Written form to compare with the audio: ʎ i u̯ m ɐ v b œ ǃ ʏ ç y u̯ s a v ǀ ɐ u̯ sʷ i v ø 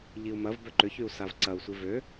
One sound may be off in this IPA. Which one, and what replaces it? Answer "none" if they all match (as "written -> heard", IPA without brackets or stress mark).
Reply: none